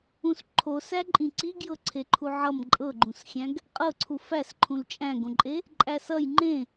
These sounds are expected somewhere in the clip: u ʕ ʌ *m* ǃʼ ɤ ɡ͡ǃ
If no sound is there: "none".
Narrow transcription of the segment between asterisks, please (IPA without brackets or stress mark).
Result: m